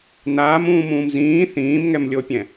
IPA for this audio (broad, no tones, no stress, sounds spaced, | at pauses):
n aː m ũː m ũː m z ĩː θ ĩː m ŋ ɛ m lʲ o pʲ ɛ̃